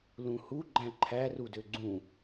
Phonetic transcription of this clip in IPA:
lũhu ɡ͡ǃæ̃ǃʰærudø ɡ͡ǀũ

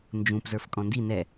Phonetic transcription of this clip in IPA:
nd͡ʒũpzə˞f kʼɔ̃ndi nɛ

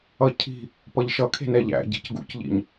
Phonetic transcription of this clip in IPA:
ʌcʰi̤ | pʌʎʃʌ kʰe̤nɛʎæ̰ɟe̤c ɡṵcʎḭɲ

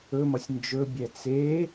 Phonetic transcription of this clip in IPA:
ɵmʌsʲ nd͡ʒɵbʲɛ t͡se

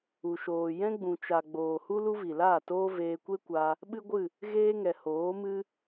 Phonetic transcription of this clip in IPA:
u˨ʃoː˨ jɛ̃˦ɡ͡bũ˨t͡ʃa˨ ɡ͡boː˨hu˦ lu˦vi˨laː˦˨toː˦ veː˧kʷe˦kʷa˧ | ɓɨ˦ɡʷɨ˦˨ | ɣeː˦ŋɛ˨hoː˨˦ mɨ˦

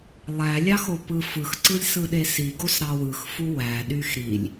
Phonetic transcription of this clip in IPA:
lˠælʲɑ xopɯfɯxǀɯlʲ sɯɗesiɡos ɾɑwɯxfu wæɗyx ɾilʲ

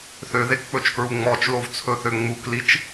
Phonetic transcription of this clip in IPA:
θøðekk͡pɵt͡ʃkɹu ŋ͡mɔt͡ʃlovt͡sʰɵθø ŋ͡muklit͡ʃ

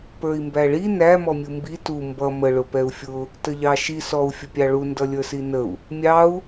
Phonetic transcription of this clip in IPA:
pə˞i̯mbæɭi næ mɔmʲumbi tu mbʌ mə ɭʊpɛu̯fʲʊ | təʎɑʃi sɔu̯ fʲəpʲɑɭu ndʌlʲə˞sinəu̯ | mʲɑu̯

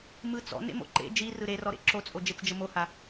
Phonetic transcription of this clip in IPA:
mɯt͡sɔ̰ nḛmo̰ǃḛ d͡ʒi rɯɾerɔɾḛ ǁot͡sʼo d͡ʒet͡sd͡ʒəmoha

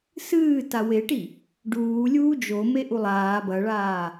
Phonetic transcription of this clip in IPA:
sɨː taweʈi | ɖuː lʲuːd͡ʒome ʔulˠaː bɐɭaː

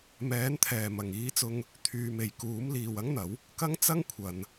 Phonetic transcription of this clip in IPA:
mɛː˨˥nt̪ʰɛː˨˩mɐ˨˩ŋ iː˧t͡sʊ˧ŋ | t̪ʰyː˨me˨˩jkuː˨˥m liː˨wɐ˥ŋn̪ɐ˨˥w | kɐ˥ŋ t͡sɐ˥ŋ kʷʰɐ˨n

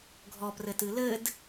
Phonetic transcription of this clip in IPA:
ɡʱɔprɘtɨ lɘd

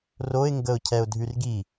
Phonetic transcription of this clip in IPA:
roɪ̯ŋɡəʊ̯cʰɛʊ̯ dʱʉrɡi

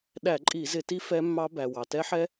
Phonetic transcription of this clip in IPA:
ɗæ˧˩˧ǃʼi˧˩˧ zɪ˧˩˧ti˦˥ fɛ˦˥mːɑ˦˥ bæ˩ wɑ˩tɛ˦˥ħɛ˦˥

